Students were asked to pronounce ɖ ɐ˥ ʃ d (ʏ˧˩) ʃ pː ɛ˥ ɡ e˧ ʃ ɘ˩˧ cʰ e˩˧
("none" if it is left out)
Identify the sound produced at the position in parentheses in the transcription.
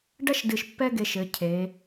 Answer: ɨ˧˩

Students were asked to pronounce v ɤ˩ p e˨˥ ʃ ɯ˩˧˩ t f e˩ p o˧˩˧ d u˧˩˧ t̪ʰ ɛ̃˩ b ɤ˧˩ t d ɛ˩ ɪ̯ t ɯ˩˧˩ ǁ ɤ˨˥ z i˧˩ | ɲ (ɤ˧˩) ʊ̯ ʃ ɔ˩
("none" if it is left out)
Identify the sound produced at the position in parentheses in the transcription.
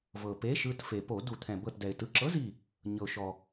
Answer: ɤ˩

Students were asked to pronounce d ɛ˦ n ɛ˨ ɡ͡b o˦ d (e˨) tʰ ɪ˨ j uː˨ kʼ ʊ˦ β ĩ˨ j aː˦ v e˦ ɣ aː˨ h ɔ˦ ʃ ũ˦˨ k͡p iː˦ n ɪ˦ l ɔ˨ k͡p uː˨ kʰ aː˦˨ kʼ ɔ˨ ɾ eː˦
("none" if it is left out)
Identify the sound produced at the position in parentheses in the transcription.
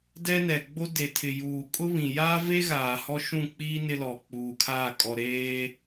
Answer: e˨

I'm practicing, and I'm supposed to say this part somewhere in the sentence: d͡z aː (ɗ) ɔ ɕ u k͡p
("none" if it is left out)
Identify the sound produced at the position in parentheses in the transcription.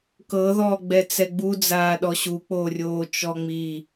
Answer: ɗ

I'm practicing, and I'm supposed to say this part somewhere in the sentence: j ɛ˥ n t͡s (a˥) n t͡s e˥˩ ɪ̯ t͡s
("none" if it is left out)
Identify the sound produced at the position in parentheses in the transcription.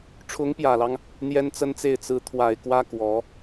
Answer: ə˥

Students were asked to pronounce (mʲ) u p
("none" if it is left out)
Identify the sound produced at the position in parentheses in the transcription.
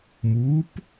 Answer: m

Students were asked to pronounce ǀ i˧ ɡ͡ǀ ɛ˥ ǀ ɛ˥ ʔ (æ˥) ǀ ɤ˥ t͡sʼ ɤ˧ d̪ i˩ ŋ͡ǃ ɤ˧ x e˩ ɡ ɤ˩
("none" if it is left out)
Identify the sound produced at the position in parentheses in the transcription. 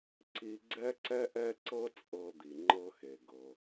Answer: ɛ˥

